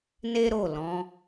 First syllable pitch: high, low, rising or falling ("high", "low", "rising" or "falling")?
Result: high